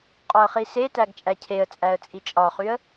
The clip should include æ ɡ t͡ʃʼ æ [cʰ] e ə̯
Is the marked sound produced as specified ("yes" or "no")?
yes